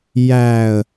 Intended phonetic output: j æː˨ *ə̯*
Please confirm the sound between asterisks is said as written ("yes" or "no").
yes